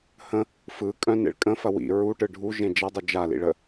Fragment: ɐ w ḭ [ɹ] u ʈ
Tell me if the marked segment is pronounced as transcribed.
yes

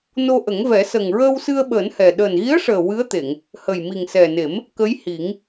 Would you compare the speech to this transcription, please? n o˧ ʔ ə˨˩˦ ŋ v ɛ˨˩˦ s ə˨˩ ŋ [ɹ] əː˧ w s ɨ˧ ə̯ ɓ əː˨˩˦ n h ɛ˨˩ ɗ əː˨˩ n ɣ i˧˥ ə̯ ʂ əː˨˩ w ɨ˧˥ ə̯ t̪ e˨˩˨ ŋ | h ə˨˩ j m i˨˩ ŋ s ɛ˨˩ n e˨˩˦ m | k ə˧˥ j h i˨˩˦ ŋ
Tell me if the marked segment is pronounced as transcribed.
yes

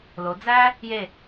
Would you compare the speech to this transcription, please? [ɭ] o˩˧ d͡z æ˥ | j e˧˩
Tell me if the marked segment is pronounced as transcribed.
no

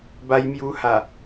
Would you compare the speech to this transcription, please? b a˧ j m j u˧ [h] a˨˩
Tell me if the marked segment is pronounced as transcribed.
yes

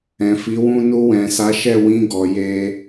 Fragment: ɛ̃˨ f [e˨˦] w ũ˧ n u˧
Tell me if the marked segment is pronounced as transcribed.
no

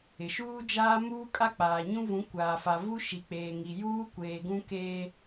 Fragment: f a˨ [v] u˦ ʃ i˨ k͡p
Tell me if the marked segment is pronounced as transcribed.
yes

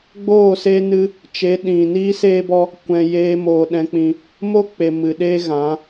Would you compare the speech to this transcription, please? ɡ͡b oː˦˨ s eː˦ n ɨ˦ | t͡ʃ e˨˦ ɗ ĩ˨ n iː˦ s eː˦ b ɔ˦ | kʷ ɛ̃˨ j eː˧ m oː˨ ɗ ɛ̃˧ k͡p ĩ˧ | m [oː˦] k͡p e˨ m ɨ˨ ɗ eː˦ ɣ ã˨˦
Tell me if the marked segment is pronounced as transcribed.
no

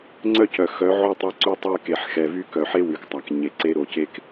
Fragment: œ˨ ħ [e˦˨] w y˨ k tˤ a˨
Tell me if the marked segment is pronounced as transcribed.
no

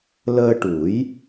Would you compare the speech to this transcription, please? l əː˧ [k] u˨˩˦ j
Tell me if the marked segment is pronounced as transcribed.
no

